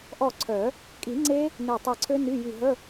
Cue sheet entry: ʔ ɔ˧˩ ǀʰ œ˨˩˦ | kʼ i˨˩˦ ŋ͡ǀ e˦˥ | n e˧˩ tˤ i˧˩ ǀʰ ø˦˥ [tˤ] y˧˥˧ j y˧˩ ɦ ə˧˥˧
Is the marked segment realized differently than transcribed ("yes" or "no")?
yes